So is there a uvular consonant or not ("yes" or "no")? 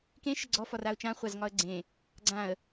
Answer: yes